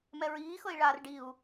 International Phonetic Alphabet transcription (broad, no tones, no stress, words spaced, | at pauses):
mɛɹiːxɤi̯ ɭar ɖiu̯